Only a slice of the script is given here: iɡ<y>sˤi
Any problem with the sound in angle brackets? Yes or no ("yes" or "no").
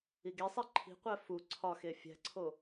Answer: yes